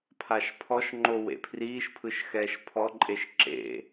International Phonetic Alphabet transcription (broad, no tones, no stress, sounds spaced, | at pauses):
pʰ a ʃ pʰ ɔ ʃ ŋ͡ǃ o w ḛ pʰ r iː ʃ pʰ ɯ ʃ x ɛː ʃ pʰ ɔ ǃʼ e ʃ ǁ ḛ